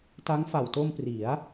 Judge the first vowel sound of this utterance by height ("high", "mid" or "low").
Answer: low